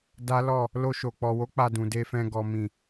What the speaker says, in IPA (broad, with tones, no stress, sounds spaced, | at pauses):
d a˦ l ɔ˦˨ | l o˧ ʃ o˨ k͡p ɔ˨ w o˨˦ k͡p a˧ d ũ˨ d e˧ f ɛ̃˧ ɡ ɔ˨ m ĩ˨